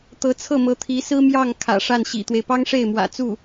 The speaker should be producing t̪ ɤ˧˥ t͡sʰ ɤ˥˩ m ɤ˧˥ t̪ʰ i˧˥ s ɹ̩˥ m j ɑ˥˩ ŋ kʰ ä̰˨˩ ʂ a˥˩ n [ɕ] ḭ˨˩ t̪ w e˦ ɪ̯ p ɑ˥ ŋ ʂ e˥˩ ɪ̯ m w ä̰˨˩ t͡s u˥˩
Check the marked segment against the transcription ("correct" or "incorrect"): correct